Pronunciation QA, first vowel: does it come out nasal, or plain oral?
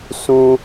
nasal